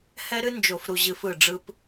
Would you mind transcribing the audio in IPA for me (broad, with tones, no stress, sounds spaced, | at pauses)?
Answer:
h ɛ˦ ɾ ɨ˦ n d͡ʒ o˨ f ɾ u˨ ʑ ɨ˨ f ɯ˦˨ ɖ͡ʐ ɯ˦ p